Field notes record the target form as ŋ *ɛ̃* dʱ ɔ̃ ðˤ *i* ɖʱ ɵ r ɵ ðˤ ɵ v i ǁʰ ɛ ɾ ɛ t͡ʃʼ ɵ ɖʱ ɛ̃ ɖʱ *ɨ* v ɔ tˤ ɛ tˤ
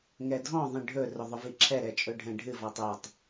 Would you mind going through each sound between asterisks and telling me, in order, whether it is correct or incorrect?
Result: incorrect, incorrect, correct

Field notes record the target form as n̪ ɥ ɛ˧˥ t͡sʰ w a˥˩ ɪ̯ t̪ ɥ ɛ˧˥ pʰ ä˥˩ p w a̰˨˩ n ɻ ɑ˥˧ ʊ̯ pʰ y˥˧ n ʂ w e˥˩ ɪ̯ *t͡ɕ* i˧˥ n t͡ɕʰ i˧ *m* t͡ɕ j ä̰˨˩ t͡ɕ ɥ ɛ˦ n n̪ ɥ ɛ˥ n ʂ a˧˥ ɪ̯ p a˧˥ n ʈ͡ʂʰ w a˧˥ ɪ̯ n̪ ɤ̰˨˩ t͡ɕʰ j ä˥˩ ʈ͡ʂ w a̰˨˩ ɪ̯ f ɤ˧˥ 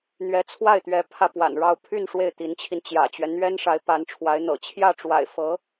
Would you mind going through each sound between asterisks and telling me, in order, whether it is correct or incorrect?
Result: incorrect, incorrect

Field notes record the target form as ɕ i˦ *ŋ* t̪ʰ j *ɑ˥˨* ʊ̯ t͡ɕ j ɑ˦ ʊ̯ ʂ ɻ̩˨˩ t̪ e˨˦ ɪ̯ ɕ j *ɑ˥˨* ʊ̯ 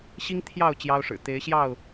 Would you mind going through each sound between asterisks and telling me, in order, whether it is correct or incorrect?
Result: correct, correct, correct

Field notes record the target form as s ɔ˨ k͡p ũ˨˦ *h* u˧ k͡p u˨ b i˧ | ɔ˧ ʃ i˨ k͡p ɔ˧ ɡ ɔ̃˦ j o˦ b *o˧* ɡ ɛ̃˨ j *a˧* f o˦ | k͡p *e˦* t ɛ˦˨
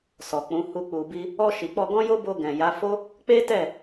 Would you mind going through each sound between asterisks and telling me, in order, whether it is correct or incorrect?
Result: correct, correct, incorrect, correct

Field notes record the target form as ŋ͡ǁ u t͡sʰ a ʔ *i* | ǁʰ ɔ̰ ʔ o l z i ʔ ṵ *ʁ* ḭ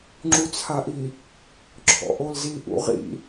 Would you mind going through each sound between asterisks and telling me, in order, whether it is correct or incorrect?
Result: correct, correct

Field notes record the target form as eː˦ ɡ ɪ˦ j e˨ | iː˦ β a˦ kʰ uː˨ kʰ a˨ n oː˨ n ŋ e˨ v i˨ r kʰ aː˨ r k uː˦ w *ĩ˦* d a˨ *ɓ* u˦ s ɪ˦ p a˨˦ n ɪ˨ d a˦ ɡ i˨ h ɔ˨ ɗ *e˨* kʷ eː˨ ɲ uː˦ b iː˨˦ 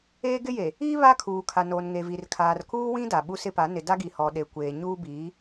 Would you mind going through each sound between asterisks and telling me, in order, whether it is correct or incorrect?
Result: correct, correct, correct

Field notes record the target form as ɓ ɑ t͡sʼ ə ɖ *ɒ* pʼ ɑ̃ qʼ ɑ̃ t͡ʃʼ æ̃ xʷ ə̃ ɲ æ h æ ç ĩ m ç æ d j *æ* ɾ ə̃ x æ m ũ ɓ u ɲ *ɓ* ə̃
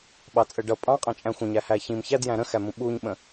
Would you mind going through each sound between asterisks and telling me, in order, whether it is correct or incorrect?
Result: incorrect, incorrect, correct

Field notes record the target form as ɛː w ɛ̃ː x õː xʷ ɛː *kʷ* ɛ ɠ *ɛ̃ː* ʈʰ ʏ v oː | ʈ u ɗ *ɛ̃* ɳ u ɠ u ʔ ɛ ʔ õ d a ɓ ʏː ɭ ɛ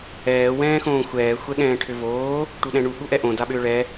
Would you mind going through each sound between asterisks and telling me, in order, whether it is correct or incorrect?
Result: incorrect, correct, correct

